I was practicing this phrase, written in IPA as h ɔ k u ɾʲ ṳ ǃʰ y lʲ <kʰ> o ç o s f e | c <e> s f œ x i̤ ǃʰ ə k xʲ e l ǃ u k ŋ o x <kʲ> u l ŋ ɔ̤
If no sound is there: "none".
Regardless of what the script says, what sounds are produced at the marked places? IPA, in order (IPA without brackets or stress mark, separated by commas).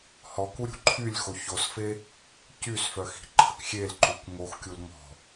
x, y, kʲ